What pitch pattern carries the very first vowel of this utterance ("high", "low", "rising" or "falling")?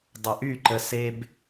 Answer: low